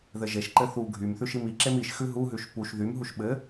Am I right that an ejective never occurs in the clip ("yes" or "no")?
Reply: yes